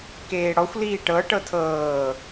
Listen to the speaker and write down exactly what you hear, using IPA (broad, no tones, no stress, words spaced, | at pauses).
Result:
keːɽɔxʷ liːʈɤ ʈɤtʰɤː